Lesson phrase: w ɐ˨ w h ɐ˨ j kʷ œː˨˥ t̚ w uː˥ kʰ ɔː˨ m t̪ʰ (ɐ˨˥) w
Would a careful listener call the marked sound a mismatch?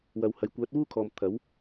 no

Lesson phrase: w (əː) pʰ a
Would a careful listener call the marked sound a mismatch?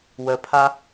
yes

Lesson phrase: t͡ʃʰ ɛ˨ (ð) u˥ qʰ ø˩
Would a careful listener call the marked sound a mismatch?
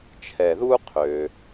no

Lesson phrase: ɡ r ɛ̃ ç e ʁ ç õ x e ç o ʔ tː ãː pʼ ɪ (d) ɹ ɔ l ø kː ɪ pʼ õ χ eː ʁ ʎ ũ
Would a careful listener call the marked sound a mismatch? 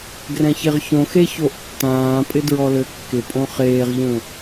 no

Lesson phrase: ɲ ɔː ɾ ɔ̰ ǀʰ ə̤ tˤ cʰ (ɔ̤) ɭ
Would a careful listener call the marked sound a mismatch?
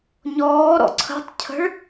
yes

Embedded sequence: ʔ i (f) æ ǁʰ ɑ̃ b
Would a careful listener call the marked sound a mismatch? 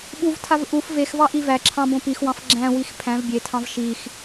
yes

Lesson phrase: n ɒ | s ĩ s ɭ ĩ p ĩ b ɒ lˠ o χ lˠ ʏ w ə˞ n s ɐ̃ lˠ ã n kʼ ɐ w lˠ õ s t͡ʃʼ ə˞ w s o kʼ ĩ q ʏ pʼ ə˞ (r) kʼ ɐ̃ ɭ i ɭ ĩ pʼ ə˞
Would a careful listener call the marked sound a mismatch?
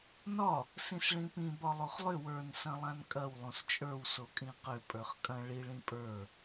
yes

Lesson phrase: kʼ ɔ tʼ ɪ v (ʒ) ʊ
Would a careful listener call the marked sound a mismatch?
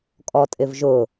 no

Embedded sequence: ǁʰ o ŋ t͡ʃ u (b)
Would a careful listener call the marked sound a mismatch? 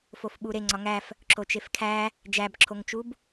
no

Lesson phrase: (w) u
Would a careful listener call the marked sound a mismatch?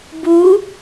yes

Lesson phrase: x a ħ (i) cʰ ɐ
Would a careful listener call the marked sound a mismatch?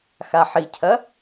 no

